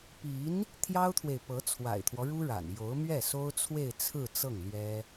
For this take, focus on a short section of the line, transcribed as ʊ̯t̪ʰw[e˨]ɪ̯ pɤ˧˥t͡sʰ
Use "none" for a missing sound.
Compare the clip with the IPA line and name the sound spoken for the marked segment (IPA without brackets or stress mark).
e˨